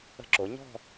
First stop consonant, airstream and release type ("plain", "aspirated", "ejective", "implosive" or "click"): click